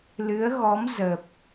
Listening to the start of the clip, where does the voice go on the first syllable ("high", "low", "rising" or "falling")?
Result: rising